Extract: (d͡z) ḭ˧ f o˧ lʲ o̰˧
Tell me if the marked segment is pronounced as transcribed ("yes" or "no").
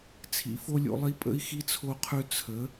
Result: no